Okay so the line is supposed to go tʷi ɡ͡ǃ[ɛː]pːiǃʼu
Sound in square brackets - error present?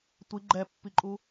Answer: yes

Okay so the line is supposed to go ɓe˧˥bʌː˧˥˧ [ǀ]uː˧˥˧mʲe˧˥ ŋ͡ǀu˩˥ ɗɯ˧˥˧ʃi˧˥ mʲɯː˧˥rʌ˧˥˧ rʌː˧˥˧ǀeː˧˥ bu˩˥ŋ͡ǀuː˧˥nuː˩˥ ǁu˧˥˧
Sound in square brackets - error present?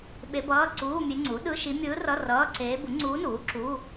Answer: no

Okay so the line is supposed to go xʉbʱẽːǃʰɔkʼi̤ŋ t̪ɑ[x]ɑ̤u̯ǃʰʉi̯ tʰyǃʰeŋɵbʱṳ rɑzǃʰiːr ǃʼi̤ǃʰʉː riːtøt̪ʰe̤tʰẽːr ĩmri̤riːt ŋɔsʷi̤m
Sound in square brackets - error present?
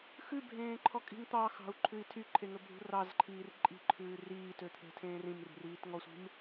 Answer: no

